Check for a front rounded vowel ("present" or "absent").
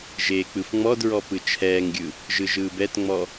absent